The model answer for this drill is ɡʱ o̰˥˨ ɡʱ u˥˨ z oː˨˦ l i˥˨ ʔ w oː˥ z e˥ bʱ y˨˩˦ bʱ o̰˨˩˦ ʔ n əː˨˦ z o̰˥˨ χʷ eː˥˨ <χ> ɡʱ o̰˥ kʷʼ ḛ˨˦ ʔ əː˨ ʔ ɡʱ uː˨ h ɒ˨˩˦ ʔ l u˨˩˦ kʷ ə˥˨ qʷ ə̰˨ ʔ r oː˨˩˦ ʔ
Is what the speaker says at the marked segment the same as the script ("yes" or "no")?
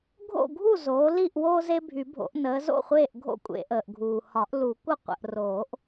no